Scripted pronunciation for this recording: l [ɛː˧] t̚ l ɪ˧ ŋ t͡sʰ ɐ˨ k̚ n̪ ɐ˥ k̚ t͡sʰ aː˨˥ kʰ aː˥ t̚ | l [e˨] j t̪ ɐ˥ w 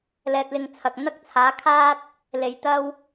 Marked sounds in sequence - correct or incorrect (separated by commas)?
correct, incorrect